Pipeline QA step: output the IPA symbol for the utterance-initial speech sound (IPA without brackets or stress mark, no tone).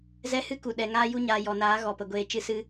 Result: z